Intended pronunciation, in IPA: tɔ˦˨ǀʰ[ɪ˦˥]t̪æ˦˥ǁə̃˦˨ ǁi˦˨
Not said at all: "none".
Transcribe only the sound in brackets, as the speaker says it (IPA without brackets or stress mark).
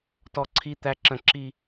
i˦˥